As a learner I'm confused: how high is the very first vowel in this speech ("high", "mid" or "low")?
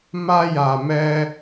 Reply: low